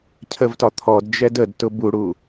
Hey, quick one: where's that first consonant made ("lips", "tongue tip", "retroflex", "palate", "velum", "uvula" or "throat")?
palate